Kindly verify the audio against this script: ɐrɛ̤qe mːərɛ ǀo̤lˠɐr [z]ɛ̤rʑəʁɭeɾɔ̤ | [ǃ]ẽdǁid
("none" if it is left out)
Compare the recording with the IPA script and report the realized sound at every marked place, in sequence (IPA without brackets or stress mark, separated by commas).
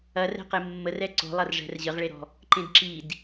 ʐ, ǃ